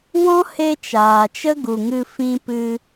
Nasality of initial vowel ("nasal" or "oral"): nasal